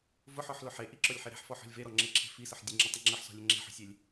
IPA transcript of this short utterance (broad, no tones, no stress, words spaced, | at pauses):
vʊħɔħlʊ ħe ʔiǁɔlʲħe ɾe̤ħfɔħɔ̤lʲ veɾɔŋ͡ǁeǁʰe̤ fisəħ dʲəŋ͡ǁətˤə ŋ͡ǁəħsɔ̤lʲə ŋ͡ǁe̤ħɔ̤sʲelʲ